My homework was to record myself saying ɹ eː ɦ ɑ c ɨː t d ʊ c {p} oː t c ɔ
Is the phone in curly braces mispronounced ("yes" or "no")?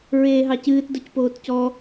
no